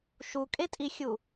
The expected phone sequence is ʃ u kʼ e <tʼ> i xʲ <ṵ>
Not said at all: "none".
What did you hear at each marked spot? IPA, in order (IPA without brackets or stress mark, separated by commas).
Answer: tʼ, u